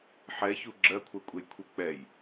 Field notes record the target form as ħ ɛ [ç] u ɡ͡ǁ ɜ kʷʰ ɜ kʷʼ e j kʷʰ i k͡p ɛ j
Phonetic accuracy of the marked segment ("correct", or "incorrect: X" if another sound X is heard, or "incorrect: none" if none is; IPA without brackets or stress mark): correct